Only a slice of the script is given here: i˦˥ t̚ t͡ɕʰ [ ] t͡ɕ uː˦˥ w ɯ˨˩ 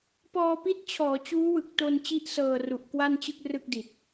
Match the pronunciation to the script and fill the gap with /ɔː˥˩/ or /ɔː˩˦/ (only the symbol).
ɔː˩˦